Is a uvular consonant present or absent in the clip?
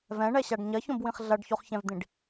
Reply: present